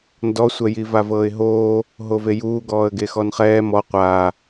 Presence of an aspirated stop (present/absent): absent